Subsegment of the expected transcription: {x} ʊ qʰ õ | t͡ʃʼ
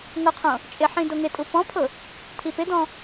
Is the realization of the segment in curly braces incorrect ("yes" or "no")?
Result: yes